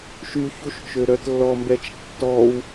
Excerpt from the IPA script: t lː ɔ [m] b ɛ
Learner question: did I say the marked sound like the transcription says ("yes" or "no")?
yes